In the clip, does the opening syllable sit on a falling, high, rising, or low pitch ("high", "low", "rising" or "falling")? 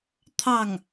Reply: falling